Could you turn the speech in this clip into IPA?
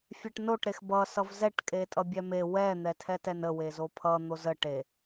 fʲ ɛ ʈ n o ʈ ɾ e x b ʌ s ʌ v z ɛ ʈ kʼ e tʼ ʌ bʲ ɛ m e w ɛ n̪ ɛ tʰ ɛ t ɛ n ə w e z o pʰ ʌ n̪ o z ə ʈ e

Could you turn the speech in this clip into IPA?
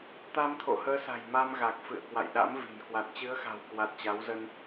t̪ a˧ m t̪ʰ o̰˧˨ h əː˨˦ s a̤˨˩ j m a˧ m ɣ a˨˩ k̚ f ɨ̰˧˨ ə̯ k w a̰˧˨ j ɗ a̰˧˥ m v i̤˨˩ n k w a˨˩ t̚ t͡ɕ ɨ˨˦ ə̯ x a̤˨˩ w k w a˨˩ t̚ t͡ɕ a˨˦ w z ə˧ n

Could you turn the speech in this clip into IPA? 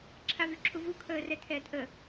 ǁʰ a v y ǁʰ u v u kʰ əː r ɛ tʰ ɛː t ʔ ə

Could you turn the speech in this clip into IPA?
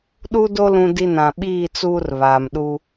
ɗ u˦ d o˦ l ũ˦ d i˦ n ã˨ ɓ iː˦˨ t͡s uː˦ r β aː˨ m ɗ u˦

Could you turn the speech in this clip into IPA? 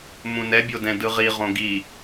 m ũ n ɛ bʲ o d ɛ̃ d ɯ ʁ i ʁ õ ɡ i

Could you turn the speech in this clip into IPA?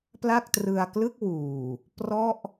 p l a˥˩ k̚ t r ɯ˧ a̯ k l ɯ˥˩ k̚ w uː˨˩ | p r ɔ˥˩ ʔ

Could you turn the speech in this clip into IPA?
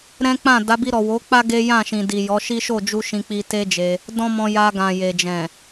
ɾ ɛ̃˦ k͡p ã˦˨ d a˨˦ b i˧ ɾ ɔ˨ w o˨˦ k͡p a˦ ɡ e˦ j ã˦˨ ʃ ĩ˨ d i˨ j ɔ˨˦ ʃ i˦ ʃ o˦˨ d͡ʒ u˧ ʃ ĩ˧ k͡p i˧ t e˦ d͡ʒ e˧ | d ɔ̃˦ m ɔ̃˧ j a˧ ɡ ã˨ j e˨ d͡ʒ ɛ̃˨

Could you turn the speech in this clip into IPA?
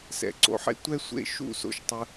s ɛ̰˧˩ ǀ o̰˧ ħ ḛ˥ tʷ ɛ˥ sʷ ḛ˥˧ ʃ ṵ˥˧ s o̰˧ ʃ tˤ ɯ˧

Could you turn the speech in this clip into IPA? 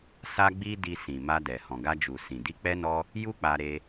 s a˦ ɡ͡b i˦ d i˧ s ĩ˨ m a˧ d ɛ˨ h ɔ̃˨ ɡ a˧ d͡ʒ u˨ s ĩ˨ d i˧ k͡p ɛ˧ n ɔ˧ | j u˦ k͡p a˧ ɾ e˧

